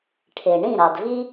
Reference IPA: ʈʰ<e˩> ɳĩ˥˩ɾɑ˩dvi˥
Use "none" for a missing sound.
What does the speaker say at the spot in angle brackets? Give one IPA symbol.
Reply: e˩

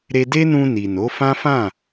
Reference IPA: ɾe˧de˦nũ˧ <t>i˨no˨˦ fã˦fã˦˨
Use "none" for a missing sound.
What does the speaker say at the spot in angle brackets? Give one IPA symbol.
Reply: n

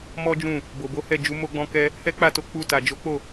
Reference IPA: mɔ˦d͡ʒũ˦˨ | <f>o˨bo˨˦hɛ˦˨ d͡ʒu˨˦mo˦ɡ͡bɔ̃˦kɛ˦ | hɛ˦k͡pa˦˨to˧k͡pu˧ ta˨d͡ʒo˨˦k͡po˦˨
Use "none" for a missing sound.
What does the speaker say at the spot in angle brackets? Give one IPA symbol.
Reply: b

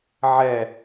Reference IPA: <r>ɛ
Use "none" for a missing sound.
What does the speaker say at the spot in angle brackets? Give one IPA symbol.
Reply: ʕ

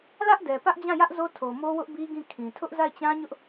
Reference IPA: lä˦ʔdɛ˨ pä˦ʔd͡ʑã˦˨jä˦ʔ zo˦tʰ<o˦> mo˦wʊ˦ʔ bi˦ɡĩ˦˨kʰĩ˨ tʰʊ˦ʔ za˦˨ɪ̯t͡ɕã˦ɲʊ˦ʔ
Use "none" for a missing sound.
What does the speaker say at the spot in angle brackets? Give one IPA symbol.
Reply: o˨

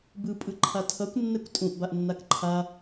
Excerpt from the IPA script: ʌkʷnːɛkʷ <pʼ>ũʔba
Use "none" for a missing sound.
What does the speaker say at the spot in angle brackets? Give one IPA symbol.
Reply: tʼ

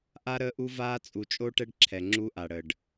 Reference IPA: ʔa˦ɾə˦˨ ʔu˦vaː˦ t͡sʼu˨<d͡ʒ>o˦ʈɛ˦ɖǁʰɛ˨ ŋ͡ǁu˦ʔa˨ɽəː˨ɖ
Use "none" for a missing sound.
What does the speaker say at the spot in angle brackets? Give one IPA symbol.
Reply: t͡ʃʼ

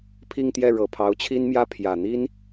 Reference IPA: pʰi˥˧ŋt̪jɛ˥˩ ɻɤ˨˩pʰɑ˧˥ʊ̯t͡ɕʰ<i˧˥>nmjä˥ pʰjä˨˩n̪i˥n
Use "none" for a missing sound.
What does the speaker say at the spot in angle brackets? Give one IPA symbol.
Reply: i˥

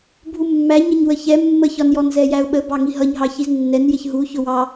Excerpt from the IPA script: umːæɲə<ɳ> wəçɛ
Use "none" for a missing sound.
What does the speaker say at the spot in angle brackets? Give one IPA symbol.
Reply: ɲ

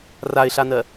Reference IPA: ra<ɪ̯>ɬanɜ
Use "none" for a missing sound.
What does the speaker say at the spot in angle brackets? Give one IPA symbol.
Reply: ɪ̯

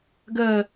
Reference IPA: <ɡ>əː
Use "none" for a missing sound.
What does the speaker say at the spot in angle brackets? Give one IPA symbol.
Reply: ɡ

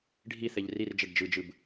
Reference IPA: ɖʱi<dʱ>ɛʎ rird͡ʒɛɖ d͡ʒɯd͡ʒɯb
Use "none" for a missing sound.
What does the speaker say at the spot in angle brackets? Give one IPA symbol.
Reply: θ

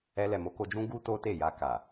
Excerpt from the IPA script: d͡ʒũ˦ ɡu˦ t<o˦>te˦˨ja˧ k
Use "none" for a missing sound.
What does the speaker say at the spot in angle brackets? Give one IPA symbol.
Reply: o˦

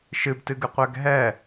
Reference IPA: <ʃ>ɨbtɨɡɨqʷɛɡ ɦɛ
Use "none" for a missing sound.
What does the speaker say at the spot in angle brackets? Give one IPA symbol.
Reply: ʃ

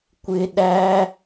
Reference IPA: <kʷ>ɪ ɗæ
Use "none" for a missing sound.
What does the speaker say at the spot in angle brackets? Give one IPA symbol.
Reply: kʷ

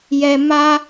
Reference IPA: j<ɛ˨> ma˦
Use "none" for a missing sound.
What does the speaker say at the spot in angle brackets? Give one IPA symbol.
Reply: ɛ˨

